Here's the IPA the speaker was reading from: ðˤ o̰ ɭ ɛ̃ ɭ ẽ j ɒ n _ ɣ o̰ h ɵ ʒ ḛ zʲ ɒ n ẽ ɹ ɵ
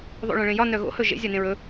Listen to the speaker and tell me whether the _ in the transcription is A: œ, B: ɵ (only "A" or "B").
A